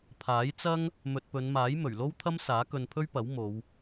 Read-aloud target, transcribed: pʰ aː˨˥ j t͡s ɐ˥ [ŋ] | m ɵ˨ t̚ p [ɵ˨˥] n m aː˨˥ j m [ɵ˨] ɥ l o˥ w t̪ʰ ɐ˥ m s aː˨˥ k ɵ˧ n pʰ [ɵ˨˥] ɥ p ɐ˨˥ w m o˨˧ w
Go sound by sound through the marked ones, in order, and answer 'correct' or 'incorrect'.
correct, incorrect, incorrect, incorrect

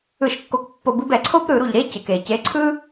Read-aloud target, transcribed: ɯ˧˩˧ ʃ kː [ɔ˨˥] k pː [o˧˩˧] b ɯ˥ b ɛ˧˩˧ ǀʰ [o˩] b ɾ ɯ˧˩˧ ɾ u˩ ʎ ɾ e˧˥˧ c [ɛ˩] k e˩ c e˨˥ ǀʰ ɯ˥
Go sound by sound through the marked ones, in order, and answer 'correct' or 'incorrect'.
incorrect, correct, incorrect, incorrect

